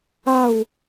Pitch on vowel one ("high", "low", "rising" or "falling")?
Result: falling